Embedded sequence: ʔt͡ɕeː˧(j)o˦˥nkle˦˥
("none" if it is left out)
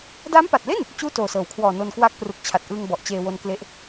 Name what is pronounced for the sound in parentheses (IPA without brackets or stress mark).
w